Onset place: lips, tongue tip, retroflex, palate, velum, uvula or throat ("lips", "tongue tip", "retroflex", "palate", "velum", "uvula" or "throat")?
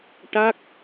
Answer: retroflex